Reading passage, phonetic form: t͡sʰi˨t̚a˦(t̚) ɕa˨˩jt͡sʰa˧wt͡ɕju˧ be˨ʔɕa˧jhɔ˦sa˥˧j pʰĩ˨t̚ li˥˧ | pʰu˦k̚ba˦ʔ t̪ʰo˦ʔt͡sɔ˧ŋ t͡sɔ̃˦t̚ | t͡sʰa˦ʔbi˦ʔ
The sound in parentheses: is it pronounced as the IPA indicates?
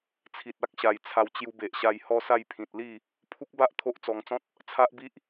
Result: no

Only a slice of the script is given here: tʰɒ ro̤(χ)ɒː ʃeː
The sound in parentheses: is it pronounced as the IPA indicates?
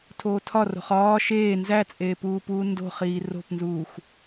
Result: yes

